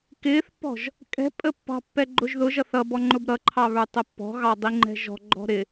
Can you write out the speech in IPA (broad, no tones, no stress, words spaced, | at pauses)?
kɪːθpːɔ̤ʒ | kʼɛ̤pʼə pːɑ̤pːɛ ɡ͡ǃʊʒðʊʒʌ θʌ bɔŋ͡ǃʊbɾʌǃʰɑ βə˞tˤəpːɔ̤ɣɑ dˤiŋ͡ǃɛ̤ʒɔ̤ɡ͡ǃɔ̤ ɾɪ